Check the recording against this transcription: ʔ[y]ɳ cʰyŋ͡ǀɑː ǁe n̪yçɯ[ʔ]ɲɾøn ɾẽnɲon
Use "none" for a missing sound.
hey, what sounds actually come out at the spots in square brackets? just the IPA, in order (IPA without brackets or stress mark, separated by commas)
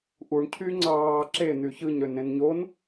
u, none